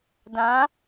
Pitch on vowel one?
rising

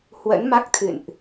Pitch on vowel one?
rising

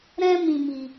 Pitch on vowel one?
high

